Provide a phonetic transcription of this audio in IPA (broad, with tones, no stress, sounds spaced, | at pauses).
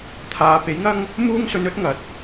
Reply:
t̪ʰ aː˨ p e˨˥ j ŋ ɐ˥ ŋ | m uː˥ ŋ s ɵ˧ n ɵ˥ t̚ ŋ ɐ˨ t̚